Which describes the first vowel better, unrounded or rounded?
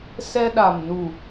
unrounded